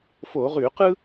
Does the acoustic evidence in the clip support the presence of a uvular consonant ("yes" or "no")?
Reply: yes